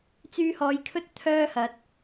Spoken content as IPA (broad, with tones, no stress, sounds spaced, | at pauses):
t͡s yː˧ h ɔː˨˧ j kʰ ɵ˥ t̚ t̪ʰ œː˥ h ɐ˨˥ t̚